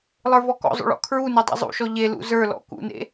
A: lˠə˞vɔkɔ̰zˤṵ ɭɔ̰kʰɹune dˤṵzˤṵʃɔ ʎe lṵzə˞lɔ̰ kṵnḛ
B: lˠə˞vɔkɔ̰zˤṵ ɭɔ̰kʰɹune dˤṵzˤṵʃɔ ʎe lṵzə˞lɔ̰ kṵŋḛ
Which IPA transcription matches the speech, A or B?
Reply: A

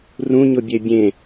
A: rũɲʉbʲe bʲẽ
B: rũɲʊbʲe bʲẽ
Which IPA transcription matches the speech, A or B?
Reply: B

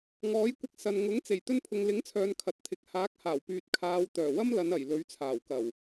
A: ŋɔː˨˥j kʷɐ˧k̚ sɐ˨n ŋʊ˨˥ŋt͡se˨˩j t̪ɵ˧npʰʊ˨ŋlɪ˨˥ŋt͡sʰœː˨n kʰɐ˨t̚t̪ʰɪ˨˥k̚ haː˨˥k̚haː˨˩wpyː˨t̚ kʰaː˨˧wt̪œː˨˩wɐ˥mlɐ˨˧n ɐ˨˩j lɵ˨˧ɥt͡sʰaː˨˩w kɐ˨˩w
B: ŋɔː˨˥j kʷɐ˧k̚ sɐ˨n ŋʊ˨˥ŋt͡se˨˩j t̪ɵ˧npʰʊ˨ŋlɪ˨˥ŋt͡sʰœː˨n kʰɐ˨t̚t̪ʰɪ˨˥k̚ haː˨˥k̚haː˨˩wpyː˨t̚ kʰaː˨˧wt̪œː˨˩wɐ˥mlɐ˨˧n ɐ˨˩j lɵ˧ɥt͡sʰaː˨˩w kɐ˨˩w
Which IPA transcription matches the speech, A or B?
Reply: A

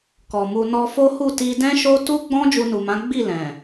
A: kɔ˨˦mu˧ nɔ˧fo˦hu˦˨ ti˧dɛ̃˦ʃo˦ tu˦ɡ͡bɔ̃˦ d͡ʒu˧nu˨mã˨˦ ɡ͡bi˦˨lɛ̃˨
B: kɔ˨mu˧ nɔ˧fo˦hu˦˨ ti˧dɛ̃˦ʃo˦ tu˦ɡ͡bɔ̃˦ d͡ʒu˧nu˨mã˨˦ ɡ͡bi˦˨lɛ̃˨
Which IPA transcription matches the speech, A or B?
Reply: B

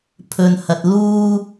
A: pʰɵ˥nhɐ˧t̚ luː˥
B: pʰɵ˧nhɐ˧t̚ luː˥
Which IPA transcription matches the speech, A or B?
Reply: B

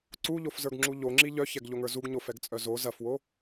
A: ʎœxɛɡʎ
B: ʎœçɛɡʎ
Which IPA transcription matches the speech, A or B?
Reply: B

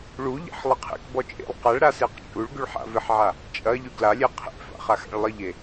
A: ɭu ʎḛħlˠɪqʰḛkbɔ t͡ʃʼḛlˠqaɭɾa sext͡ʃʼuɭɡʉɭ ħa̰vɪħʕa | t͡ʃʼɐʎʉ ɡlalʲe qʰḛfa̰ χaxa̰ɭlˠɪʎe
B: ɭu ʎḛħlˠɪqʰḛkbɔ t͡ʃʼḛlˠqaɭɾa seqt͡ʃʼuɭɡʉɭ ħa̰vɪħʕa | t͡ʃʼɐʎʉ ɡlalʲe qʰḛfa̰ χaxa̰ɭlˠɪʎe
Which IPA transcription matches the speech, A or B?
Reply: B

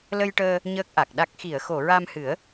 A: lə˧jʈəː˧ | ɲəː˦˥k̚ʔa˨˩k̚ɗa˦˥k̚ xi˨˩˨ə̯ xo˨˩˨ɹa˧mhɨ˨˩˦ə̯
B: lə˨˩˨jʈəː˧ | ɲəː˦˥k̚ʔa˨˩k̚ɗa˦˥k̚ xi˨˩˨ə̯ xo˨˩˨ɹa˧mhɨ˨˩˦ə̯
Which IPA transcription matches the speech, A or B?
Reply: A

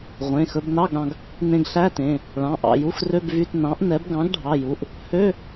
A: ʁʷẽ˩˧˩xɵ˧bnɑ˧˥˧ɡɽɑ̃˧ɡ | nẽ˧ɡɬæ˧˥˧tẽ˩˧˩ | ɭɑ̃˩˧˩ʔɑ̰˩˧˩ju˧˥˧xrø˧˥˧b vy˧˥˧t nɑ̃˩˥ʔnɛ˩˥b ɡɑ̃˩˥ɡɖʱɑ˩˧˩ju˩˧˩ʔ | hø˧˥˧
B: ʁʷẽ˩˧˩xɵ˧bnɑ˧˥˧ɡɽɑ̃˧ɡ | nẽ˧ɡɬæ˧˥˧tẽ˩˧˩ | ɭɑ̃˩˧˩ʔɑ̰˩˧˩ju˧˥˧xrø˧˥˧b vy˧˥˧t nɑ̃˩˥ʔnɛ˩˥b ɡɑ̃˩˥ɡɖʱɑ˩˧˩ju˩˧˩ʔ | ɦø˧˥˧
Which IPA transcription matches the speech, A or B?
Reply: A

